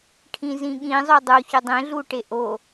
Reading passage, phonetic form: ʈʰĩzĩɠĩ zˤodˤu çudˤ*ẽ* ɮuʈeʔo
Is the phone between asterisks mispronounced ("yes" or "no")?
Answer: no